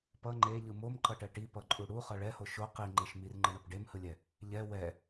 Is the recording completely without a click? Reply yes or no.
no